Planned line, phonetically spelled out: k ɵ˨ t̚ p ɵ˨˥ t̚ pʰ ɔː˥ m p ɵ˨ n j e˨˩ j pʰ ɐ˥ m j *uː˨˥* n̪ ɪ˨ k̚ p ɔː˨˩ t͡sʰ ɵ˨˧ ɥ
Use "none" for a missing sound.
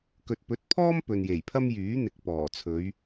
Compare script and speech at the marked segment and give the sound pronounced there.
yː˨˥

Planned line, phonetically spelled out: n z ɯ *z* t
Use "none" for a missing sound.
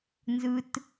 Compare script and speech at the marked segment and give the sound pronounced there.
none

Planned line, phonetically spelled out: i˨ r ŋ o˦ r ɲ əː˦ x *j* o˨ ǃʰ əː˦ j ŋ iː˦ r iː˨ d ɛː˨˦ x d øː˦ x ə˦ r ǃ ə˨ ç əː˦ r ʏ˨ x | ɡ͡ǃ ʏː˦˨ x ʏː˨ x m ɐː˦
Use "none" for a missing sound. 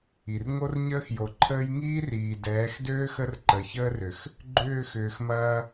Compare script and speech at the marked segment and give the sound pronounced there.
j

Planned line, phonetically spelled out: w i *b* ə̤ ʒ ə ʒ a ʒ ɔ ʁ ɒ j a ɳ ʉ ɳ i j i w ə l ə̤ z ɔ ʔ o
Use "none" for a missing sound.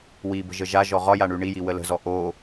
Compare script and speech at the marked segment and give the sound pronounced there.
b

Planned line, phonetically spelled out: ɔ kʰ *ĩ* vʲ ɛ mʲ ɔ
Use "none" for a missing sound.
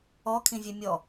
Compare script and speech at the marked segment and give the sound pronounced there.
ĩ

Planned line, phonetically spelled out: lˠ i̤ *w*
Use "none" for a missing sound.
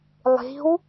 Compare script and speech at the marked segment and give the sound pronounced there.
w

